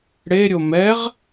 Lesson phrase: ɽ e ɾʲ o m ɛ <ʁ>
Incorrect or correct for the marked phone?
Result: correct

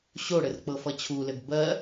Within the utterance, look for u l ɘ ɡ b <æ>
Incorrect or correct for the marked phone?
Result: incorrect: ɜ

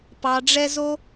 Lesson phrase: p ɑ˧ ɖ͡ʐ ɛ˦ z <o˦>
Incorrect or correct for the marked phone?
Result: correct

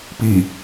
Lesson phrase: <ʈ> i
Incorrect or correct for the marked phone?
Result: incorrect: p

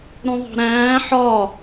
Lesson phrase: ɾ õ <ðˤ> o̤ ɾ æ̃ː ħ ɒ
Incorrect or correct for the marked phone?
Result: correct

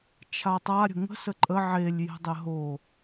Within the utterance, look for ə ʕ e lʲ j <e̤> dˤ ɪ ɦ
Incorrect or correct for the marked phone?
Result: correct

